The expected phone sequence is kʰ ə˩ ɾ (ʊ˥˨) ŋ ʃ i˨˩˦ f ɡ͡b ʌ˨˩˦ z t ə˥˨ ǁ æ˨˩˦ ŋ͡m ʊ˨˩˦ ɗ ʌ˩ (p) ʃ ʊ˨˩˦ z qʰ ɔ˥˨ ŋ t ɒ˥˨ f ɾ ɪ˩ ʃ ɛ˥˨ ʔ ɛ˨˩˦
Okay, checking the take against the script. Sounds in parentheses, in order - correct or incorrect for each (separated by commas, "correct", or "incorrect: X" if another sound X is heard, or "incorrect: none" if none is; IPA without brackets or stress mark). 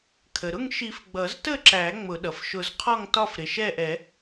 correct, incorrect: f